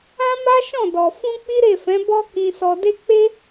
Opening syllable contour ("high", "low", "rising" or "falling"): high